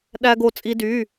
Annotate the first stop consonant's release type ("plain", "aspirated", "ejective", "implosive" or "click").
implosive